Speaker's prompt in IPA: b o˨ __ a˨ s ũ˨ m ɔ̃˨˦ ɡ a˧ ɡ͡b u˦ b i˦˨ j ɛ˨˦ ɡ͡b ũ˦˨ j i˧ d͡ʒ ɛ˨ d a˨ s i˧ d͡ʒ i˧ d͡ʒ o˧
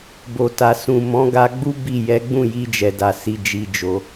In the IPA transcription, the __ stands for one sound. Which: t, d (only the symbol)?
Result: t